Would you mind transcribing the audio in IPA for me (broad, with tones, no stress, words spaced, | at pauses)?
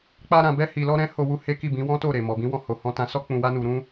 k͡pa˦ɾã˧ bɛ˦hi˧lɔ˦ ɾɛ̃˦ho˧ wu˦he˦ ki˦˨bĩ˨˦wɔ̃˦to˦˨ ɾe˨ mɔ˨bĩ˨˦wɔ̃˧ ho˨hɔ̃˧ tã˧sɔ˦ k͡pũ˧wa˦nu˧ɾũ˦